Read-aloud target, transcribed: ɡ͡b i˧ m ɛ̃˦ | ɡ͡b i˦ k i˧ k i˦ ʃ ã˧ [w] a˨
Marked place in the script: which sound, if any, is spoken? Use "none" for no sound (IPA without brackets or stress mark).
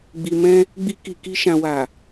w